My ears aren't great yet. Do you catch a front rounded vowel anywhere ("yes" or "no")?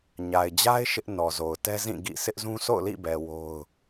no